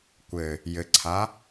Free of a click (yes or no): no